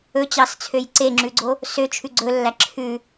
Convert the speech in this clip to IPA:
ɵ t͡ɕ ɑ s t͡sʰ ø j ǀ e ŋ͡ǁ ʉ ɡ͡ǀ o | s ø t͡ʃʰ ʉ ɡ͡ǀ ɵ lː æ ǁʰ ʉ

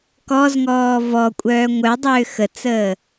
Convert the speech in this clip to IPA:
k ɔ z ŋ ɔː v ɔ kʷʼ œː ŋʷ œ dˤ ʏː x ə t͡s əː

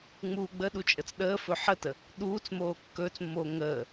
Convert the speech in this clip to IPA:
ŋ͡m uː ɡ͡b ə ɗ u t͡ʃʼ ə t͡s ɗ əː f ɵ ħ ə t ə | ɗ uː t͡s m oː kː ɵː t͡s mː oː ŋ əː

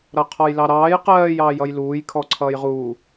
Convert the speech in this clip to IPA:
ɾ ʌ qʰ ɔ j l ɑ ɾ ɑː j q ɜː j ɑː j ʌ j l uː j kʰ ɔ ǀʰ ʌː j ʁ uː

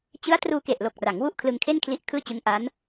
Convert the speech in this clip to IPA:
t͡ɕ ɯ˦˥ a̯ t r uː˧ k e˨˩ ʔ l o˨˩ k̚ r a˩˦ ŋ w u˥˩ ʔ kʰ l ɯ˧ ŋ kʰ e˥˩ n kʰ l i˦˥ ʔ kʰ ɯː˥˩ t͡ɕ ɯ˦˥ ŋ ʔ a˦˥ n

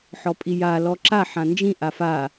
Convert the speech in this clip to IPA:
ħ ɔ pʼ i j a l ɔ ǁ a ħ ã n d͡ʒ ĩ ʔ a f a

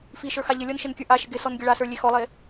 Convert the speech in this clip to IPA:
f i ʃ ə˞ x a ʎ ɘ lʲ ɔ n ʃ ɪ n kʲ ə˞ ʔ a ʃ ɪ ɡ ɪ s ɔ n ɡʲ ə ɭ a s ə˞ lʲ e x ɔ lˠ e

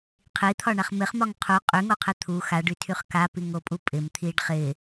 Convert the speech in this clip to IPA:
qʰ i t̪ʰ ɒ ɳ a χ m ɪ χ m ɒ ŋ qʰ u qʼ y ŋ o qʰ ɪ t̪ʰ u x a ɖ y tʰ y χ k a p i ŋ o pʼ u pʼ ɪ m t̪ʰ i ɖ χ ɪ

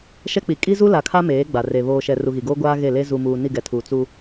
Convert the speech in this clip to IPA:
ʃ ɛ˦ k͡p i˨ kʼ i˦ z u˦ l a˨ kʰ a˦ m eː˨˦ ɡ͡b a˨ r e˨ β oː˨ ʃ ɛ˨ r u˨ ɣ i˨ ɡ oː˦ ɡʷ aː˦ ɣ e˦˨ l e˦ z u˨ m uː˨ n i˦˨ ɡ ɛ˨ tʰ uː˨ t͡s u˦

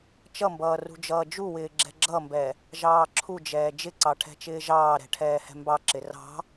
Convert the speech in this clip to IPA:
t͡ʃ ʌ m b ʌː r ṳ d͡ʒ ʌː d͡ʒ u w ɪː ɡ͡ǁ ɛ̤ ɡ͡ǁ ʌ m b ɛ | ʒ ɑː ǁʰ u d͡ʒ ɛː d͡ʒ ɪ ǀ ɑ ʈʰ ɛ̤ t͡ʃ ɪː ʒ ɑː ɾ ɛ̤ ʈʰ ɛː h ɛ̤ m b ɑ ǁ ɪ r ɑ̤

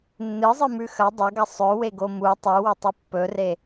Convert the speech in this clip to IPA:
nː ɨ zˤ ɨ m ʉ x ɐ dˤ ɐ ɡ ɐ sˤ ɵ w e ɡ o m u tˤ u w ɵ tˤ ɨ pː ɵ r e

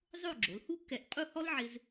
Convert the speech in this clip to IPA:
zˤ o˥˧ ɡ͡ǁ o˩˧ l h u˥ k ɛ˧˩ ʔ qʼ u˥˧ h ɔ˥ l ʕ ɪ˧ z

